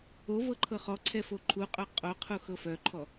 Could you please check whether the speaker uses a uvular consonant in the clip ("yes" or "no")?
yes